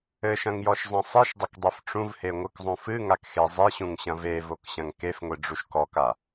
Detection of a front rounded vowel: absent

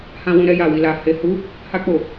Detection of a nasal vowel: present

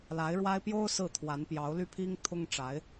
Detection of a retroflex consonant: present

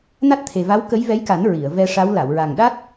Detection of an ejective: absent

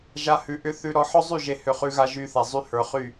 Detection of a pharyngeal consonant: present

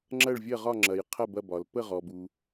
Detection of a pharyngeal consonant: absent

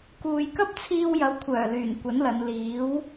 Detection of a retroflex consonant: absent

